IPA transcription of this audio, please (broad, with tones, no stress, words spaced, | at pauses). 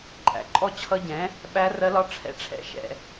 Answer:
ǃʼæ̰˩˥ǃʼɔ˥˨ t͡ɕʰʌ˦˥ ɟɛ̃˩˥ | ɓæ˦˥rɜ˦˥lɒ˦˥ ʈ͡ʂʰɛ̰˦˥ʈ͡ʂʰɛ̰˦˥ ʃɛ̰˥˨